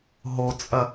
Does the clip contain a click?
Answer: no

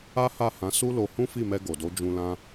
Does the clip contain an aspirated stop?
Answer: no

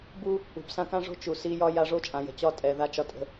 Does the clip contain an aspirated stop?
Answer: no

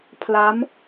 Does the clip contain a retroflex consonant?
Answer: no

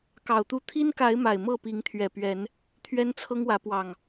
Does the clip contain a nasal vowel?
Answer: no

